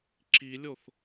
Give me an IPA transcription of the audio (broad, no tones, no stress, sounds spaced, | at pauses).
ǁ i lʲ o θ